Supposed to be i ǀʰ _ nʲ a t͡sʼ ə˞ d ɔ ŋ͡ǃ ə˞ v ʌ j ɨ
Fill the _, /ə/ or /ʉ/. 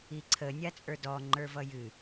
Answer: ə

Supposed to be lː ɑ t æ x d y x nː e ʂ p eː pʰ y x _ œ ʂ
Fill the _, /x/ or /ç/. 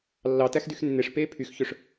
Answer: ç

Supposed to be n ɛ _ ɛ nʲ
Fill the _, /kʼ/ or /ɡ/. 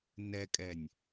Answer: kʼ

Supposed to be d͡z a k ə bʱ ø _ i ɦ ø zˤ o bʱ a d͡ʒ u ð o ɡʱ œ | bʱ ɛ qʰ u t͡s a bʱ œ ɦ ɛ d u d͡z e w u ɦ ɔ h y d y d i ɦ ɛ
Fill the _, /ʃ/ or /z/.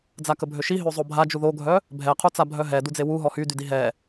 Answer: ʃ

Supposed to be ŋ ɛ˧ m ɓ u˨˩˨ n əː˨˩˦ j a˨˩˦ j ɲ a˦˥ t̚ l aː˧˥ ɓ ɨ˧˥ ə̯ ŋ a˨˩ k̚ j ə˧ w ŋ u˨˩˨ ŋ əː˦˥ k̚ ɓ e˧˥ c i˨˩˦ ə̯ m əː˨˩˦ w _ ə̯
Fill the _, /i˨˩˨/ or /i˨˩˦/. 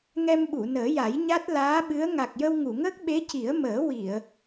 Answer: i˨˩˨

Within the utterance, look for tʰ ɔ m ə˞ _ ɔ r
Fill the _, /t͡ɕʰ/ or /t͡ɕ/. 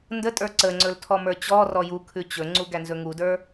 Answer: t͡ɕ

